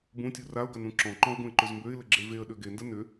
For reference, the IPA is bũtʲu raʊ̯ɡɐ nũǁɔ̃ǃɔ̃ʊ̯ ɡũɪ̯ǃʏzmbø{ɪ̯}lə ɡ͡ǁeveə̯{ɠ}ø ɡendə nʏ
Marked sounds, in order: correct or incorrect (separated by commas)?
correct, incorrect